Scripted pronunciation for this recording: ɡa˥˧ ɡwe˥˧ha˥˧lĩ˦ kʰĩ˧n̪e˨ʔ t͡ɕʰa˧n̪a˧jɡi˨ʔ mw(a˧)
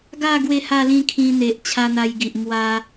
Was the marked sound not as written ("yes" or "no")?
no